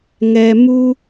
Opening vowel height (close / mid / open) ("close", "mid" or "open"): mid